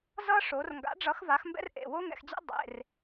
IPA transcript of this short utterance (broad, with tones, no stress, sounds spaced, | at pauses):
z ʌ˥ ʂ o˩˧ r ŋ ɡ a̰˨˥ ɖ͡ʐ ʌ˨˥ x v a˨˥ x m b ɛ̰˥ r ʔ ḛ˩˧˩ w o˥ ŋ ɛ̰˩˧ x d͡ʑ ḛ˥ dˤ ḛ˩˧˩ r